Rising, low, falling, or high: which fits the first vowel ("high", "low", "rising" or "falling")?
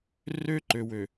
high